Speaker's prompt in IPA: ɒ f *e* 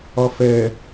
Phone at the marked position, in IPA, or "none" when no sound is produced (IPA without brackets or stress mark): ɛ